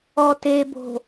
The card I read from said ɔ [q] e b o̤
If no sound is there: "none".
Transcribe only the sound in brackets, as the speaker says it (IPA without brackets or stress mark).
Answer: t